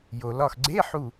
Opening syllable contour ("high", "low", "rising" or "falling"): low